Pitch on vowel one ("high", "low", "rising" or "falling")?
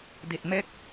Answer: low